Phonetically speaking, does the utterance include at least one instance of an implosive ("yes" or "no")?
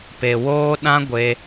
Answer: yes